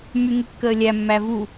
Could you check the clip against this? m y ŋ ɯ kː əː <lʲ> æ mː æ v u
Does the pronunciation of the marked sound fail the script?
no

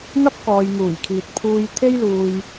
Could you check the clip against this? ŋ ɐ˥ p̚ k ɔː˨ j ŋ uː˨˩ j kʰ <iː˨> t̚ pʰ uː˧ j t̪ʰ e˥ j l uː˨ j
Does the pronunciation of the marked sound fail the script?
no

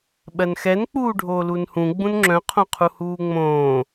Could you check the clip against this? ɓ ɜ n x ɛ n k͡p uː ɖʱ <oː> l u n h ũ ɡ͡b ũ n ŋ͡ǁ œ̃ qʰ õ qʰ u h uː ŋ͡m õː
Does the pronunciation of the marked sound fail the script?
no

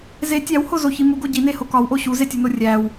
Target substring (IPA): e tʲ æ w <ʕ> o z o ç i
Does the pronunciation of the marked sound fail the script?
yes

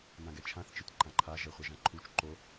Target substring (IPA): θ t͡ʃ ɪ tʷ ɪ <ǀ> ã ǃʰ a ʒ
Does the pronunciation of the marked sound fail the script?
yes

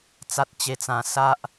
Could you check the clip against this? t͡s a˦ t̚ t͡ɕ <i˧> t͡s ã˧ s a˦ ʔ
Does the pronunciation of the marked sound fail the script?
yes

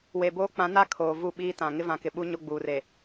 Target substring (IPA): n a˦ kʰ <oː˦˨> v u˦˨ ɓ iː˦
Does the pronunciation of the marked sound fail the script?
yes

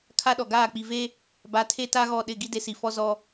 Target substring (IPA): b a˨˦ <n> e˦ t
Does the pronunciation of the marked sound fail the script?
yes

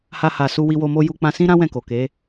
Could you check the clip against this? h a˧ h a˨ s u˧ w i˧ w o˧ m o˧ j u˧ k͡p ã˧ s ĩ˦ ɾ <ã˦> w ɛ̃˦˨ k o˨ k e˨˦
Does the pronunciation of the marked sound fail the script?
no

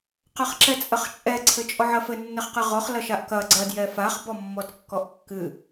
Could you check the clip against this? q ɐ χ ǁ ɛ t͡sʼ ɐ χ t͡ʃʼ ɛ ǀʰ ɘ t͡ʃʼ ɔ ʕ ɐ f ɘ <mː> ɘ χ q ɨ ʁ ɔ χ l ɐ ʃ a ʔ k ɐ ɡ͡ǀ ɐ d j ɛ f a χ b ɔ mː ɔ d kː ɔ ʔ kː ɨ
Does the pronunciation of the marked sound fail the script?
yes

